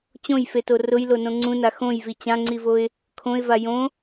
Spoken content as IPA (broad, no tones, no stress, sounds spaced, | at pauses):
t͡ɕ õ j f e t o r ʊ j l o n õ ŋ͡ǀ ũ n a x õ j v i t͡ɕ ã ŋ͡ǀ i v o ɪ̯ | kʰ õ ɪ̯ v a j õ